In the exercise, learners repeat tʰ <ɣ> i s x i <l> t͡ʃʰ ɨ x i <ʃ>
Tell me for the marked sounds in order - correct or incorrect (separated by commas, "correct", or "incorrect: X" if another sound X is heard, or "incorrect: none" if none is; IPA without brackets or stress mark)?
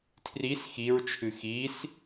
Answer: incorrect: r, incorrect: ɹ, incorrect: s